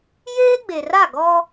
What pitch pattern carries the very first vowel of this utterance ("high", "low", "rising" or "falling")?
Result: high